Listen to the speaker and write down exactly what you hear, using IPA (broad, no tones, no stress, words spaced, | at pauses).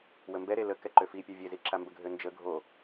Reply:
wəmbɛɾe lə kɛǃøfipʲɛ vʲeziǁambə ɡʱønd͡ʒə ɡʱo